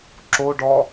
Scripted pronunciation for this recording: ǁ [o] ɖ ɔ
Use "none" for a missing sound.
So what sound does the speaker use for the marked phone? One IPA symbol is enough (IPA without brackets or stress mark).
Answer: o